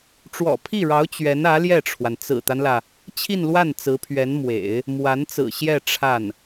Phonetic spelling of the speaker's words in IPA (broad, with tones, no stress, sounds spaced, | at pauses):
ʈ͡ʂ w ɔ̰˨˩ pʰ i˥˩ ɻ ɑ˧˥ ʊ̯ t͡ɕ ɥ ɛ˧˥ n ä˧˥ l j ɛ˥˩ ʈ͡ʂʰ w a˩ n t͡s ɹ̩˨˩ t̪ a˦ n l ä˩ | t͡ɕʰ i˥˧ n l w a˥˩ n t͡s ɹ̩˧˥ pʰ ɥ ɛ˧˥ n m w ḛ˨˩˦ ɪ̯ | m w a˧˥ n t͡s ɹ̩˨˩ ɕ j ɛ˥˧ ʈ͡ʂʰ a˥˩ n